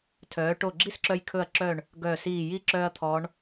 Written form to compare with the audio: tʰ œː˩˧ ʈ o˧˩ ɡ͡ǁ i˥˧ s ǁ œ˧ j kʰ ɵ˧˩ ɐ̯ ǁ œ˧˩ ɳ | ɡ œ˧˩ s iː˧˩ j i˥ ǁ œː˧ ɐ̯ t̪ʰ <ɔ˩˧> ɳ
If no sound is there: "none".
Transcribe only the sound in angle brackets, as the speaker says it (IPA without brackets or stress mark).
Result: ɔ˩˧